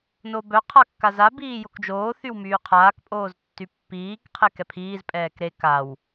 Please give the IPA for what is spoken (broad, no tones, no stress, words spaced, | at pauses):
nobœ qʰakːaza biːjokd͡ʒoː θywmyːqʰaːk pʼoːztːypːiːk qʰekɛpʰiːz pʼɛːkɾe kaw